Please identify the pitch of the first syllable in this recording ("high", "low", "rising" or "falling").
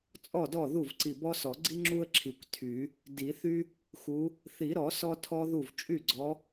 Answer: falling